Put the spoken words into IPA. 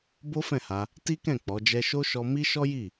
b o˦ f ɛ̃˦˨ h a˧ | t i˦ k ɛ̃˦˨ k͡p ɔ˨˦ d͡ʒ ɛ˦ ʃ o˦ ʃ ɔ˧ m i˦ ʃ ɔ˦ j i˦˨

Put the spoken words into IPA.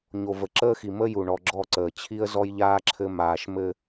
ɲ o˨ v ə˨ ǁ əː˦ x i˨ m ə˦ j u˨ ɳ ɔ˨ ɡ͡ǁ ɔ˦˨ ǀ əː˨ t͡ɕʰ i˦ ə̯ z ɔ˦ j ʎ aː˦ ǁʰ ɘ˦ m aː˦ ʃ m ɘ˦

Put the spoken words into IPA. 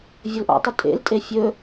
vʲ ɘ l ʔ ɔ̰ tˤ ʉ tʼ ḛ l tʼ e fʲ ɵ

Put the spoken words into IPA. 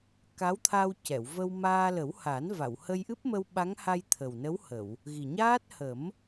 k a˧˥ w t̪ʰ a˧ w c ɛ˨˩˨ w v ə˧ w m aː˧ l ə˨˩˦ w h a˨˩˦ n v a˨˩˨ w h ə˧ j ʔ ɨ˦˥ p̚ m ə˧ w ɓ a˧˥ ŋ h a˧ j t̪ʰ ə˨˩ w n ə˧˥ w h ə˨˩˨ w | ɣ i˨˩ ɲ aː˦˥ t̚ h ə˨˩˦ m

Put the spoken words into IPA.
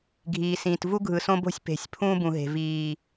ɡʱ iː˨ s ĩː˨ t v u˦ ɡʱ ɯ˨ s õ˦ b o̤˦ sʲ p e̤˨ sʲ pʰ ũː˦ b ũ˨ ɦ e̤˨ v iː˨

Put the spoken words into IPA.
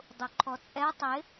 dˤ u ǃʰ ɔ t͡sʼ ɛ tˤ ɪ

